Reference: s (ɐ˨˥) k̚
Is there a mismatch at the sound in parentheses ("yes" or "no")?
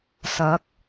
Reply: no